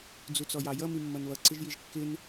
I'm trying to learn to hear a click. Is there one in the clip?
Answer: yes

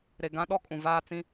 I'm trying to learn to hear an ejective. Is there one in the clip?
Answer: yes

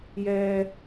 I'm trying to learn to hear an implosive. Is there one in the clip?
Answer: no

